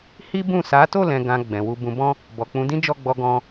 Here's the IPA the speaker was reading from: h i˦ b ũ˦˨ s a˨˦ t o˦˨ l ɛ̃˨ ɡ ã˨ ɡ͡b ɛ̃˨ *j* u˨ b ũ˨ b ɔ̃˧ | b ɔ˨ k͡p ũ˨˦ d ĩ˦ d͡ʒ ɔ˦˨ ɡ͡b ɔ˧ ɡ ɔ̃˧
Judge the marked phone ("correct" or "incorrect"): incorrect